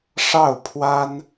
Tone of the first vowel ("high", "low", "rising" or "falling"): falling